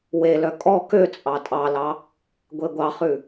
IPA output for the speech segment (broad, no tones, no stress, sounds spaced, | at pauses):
w e l œ kʼ ɔ k ø t͡sʼ ɑ tʼ ɑ l ɑ | ɡʷ e ɡʷ ɑ χ ʉ